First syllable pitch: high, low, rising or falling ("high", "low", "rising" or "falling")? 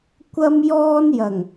high